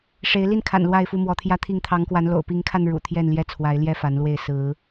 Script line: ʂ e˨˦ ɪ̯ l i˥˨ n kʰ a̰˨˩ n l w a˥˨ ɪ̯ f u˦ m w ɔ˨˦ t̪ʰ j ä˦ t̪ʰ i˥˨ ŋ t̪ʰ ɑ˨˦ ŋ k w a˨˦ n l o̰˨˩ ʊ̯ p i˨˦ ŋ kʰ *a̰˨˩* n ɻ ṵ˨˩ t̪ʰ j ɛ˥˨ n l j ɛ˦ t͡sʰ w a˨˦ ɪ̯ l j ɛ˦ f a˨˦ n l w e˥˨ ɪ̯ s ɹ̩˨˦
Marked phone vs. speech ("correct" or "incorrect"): incorrect